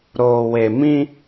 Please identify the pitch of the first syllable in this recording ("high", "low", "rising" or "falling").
low